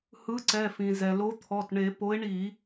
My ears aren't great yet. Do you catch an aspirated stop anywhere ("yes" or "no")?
yes